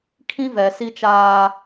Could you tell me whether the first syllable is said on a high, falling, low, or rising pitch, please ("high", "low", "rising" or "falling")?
high